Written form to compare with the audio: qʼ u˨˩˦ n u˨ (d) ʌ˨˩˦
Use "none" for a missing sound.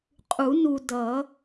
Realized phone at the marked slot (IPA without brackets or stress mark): d